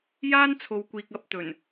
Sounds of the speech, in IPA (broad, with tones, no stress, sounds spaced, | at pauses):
j aː˥ n t͡sʰ o˨ w kʷ iː˨ k̚ ɐ˨˥ p̚ t̪ ɵ˨˩ n